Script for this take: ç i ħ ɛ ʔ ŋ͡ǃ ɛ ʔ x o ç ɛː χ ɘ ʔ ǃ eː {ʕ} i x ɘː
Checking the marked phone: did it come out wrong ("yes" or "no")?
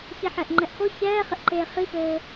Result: yes